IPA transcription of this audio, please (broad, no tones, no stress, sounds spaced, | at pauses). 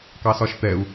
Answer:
k ɑ s ɒ ʃ t̪ ɛ u̯